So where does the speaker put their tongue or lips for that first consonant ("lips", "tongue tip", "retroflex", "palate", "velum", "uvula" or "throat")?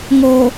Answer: velum